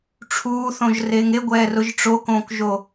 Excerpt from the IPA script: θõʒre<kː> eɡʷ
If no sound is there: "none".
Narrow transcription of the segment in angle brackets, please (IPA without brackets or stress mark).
ŋ